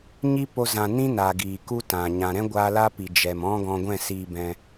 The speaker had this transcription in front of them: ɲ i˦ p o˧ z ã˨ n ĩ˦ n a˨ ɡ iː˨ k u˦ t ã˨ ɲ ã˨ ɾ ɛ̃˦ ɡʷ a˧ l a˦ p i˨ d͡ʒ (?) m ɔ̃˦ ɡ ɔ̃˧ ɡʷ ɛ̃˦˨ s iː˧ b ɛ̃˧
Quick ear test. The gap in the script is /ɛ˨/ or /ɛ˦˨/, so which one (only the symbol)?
ɛ˨